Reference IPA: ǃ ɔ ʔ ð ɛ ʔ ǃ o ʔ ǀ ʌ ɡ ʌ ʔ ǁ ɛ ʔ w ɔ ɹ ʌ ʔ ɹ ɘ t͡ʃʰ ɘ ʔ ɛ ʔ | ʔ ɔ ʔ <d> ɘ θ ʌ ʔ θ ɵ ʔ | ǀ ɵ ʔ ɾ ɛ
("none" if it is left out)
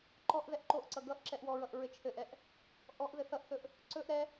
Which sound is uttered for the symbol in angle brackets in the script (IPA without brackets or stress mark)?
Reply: ð